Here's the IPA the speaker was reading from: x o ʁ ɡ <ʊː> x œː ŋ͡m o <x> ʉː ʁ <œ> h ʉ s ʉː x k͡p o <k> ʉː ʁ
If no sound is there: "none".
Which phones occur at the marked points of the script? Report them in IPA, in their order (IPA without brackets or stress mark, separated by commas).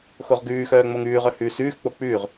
ʉː, ŋ, œ, k͡p